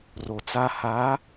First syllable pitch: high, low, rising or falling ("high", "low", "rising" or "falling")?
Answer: low